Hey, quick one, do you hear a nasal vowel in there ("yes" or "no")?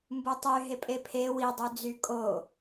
no